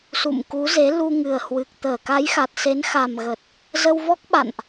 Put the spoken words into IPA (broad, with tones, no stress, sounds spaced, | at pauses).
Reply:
s ṵ˧˨ m k u˨˦ z e˨˦ l u˧ ŋ ɨ˨˩ ə̯ h w ɨ˨˩ k̚ t̪ əː˧˩ k a˨˦ j x a˨˩ t̚ s e˨˦ n x a˨˩ m ɣ ə˨˩ t̚ | z ə˧ w v ɔ˦˥ k̚ ɓ a̰˧˨ n ʔ